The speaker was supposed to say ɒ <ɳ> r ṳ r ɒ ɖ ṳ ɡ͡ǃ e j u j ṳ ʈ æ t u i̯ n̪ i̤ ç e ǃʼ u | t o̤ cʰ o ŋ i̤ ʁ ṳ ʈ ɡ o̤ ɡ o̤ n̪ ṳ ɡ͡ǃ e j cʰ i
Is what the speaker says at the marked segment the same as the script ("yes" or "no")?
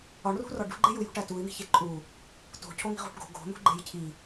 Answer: yes